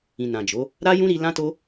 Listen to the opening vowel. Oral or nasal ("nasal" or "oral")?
nasal